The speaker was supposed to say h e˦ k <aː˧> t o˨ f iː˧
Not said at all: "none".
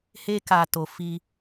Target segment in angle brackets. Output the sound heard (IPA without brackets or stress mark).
aː˧